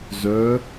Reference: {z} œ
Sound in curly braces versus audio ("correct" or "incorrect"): correct